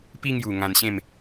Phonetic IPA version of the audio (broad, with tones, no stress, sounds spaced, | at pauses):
p i˧ ŋ j u˨˩ ŋ ã˧ n ɕ ẽ˥˧ m